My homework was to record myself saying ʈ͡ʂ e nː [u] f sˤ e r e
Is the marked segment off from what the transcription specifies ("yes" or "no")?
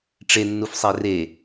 no